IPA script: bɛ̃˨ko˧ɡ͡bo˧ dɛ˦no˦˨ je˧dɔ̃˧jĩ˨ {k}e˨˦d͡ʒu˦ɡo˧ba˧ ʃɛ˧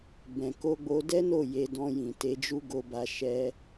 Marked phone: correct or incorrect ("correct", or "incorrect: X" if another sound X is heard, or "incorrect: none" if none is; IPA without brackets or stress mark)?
incorrect: t